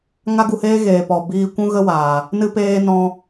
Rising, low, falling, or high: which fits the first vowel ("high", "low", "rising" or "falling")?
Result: high